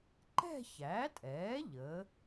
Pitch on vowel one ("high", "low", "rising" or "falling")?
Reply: falling